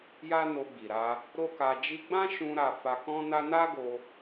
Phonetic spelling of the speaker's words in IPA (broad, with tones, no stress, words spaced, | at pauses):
ja˦no˧ɡ͡bi˨ ɾa˧ | ɾo˦ka˧d͡ʒi˦ ɡ͡bã˦ʃũ˧ ɾa˧ fa˧kɔ̃˦na˦ na˦ɡo˧